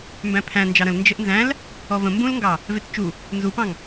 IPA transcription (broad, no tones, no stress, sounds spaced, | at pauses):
m b æ̃ pʰ æ̃ n d͡ʒ ɑ ɾ ə̃ l n d͡ʒ ə ʔ n z æ̃ l | ɔ v ə̃ m b ũ l ŋ ɡ ɑ | v e t t͡ʃ u | n z u p ɑ̃ ŋ